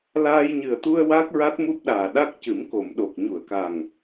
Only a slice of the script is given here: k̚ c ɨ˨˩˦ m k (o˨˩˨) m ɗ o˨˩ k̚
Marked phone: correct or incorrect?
correct